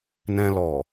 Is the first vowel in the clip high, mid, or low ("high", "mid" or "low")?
mid